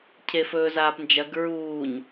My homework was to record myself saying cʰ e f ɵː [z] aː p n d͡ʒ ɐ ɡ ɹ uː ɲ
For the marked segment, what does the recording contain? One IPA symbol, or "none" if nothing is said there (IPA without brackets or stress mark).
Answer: z